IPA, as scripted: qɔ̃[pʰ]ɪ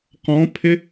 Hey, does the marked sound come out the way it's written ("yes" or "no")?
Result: yes